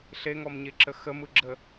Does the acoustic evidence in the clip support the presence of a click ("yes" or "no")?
yes